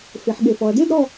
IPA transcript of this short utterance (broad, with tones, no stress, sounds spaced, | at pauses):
f e˩˧ ħ ɠ e˩˧ f ɔ˩˧ ɐ̯ d e˥˧ d ɾ ɔ˥˧